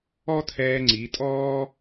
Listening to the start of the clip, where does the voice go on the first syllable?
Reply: high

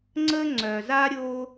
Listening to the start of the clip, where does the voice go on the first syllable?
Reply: high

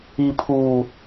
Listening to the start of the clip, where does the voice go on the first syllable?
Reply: low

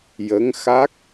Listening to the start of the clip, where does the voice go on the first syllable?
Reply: rising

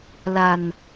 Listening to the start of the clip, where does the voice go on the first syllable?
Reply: low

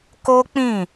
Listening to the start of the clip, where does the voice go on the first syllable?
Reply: high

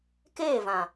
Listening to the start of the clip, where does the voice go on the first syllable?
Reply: falling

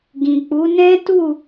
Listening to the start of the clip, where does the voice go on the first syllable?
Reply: low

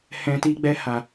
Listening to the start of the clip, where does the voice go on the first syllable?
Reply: low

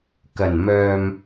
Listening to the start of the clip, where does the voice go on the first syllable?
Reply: low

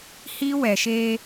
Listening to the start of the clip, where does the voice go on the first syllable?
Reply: high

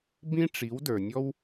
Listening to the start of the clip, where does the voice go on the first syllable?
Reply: high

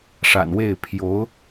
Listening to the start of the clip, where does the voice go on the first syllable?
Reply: low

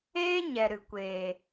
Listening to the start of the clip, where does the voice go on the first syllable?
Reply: high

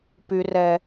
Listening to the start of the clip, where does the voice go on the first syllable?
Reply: low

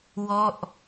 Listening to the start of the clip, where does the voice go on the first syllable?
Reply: falling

